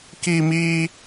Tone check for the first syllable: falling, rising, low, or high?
high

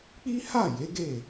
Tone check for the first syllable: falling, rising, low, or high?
high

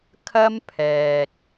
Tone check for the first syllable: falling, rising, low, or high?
high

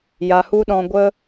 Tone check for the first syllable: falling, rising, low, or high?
low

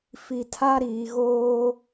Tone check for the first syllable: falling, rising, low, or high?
low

